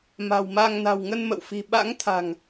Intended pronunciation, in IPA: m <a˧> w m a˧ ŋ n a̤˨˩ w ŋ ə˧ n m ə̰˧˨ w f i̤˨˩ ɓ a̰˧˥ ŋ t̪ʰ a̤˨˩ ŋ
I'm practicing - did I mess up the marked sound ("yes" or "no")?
yes